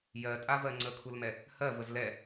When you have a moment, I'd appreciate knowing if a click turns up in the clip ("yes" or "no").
yes